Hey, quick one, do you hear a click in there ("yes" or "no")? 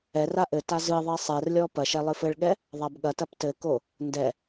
no